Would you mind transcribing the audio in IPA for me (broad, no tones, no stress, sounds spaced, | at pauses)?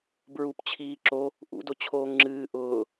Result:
b ɹ u p t͡ɕʰ iː ǁ o | ʔ ṵ d o t͡ɕʰ oː ŋ ŋ͡ǁ ɨː ʔ ʊː